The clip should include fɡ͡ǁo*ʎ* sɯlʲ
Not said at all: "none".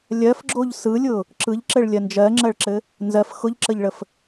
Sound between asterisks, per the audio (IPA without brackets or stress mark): ʎ